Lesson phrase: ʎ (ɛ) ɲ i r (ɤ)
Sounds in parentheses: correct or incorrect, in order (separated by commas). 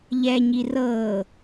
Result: correct, correct